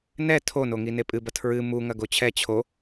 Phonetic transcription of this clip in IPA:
n ɛ tʰ o n o ŋ i n e pʼ ɨ b ɐ tʰ ɹ ɨ m u ŋ ɐ ɡ o t͡ɕʰ ɛ t͡ɕʰ o

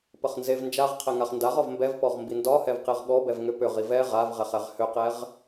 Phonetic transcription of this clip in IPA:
p ə χ n z e v n d͡ʒ a ʁ qʰ ɛ ŋ a χ n d a ʁ ɒ v m b ɛ v p ɔ ʁ m b i n d ɒ h ɛ v q e ʁ ɠ ɔ b ɛ v ŋ ʏ p ʏ ʁ i v ɛ ʁ a v ʁ ɛ χ ɛ ʁ h ʏ q ɛ ʁ

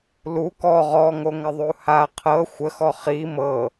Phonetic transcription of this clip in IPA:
l u k ɔ ʁ ɔ ŋ o ŋ ə ðˤ u h a qʰ ɤ xʷ ə x ɔ χ i m ɤ

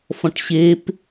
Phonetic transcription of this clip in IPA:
f ɔ̃ ʈ ɕ e p

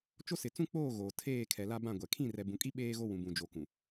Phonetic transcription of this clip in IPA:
t͡ʃ o˦ s ɪ˨ t͡s ũ˦ k͡p oː˦˨ ɣ oː˨ tʰ eː˦˨ kʰ ɛ˨ l a˦ b ã˦˨ ɡʷ ɛ˨ kʰ ĩ˦˨ r ɛ˨ b ũ˨ kʼ i˦ ɓ eː˦ ɣ o˦ w ũ˨ b ũ˨ d͡ʒ o˨ k ũ˨

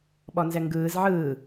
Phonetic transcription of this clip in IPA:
ɓ ɔ n z ɛ ŋ ɡ ɯː z ʕ ɯː

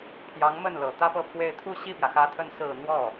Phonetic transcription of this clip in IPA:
pʰ j ɑ˧˥ ŋ m ə˥˩ n l ɤ˨˩ t̪ ä˥ p ɤ˥˧ pʰ w e˥˧ ɪ̯ t̪ʰ u˥˧ ɕ i˥˩ p j ä˩ x ä˧˥ t̪ʰ ə˧˥ n s ɹ̩˨˩ n̪ w ɔ˥˩

